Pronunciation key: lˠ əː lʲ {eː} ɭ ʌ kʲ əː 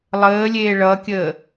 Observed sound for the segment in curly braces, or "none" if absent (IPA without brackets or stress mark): eː